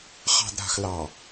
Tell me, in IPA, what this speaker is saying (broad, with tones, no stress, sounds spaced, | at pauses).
χ ɑ̤˨ d ɾ a̤˨ x l ɑ˨